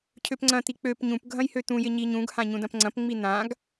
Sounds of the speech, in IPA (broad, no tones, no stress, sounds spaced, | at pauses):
cʰ ø p ŋ͡ǀ ɐ̃ t̪ i k͡p ø p ɲ ũ p ɡʱ ɐ̃ j h ø t̪ ũ j ɪ ɲ i ɲ ũ ɡ h ã ɲ ũ d ɐ̃ p ŋ͡ǀ ɐ̃ p ŋ͡m i n̪ ã ɡ